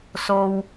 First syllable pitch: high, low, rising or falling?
low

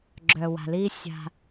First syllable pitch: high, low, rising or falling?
low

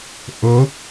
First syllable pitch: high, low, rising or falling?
rising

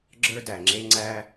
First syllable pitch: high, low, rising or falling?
high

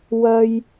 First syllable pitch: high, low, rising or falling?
high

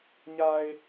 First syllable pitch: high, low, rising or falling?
low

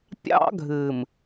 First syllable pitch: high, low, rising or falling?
high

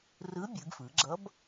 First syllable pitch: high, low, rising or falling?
rising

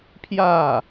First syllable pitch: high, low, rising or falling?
falling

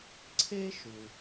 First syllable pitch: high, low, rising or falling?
high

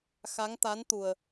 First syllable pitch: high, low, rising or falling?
rising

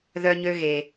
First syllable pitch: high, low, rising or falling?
high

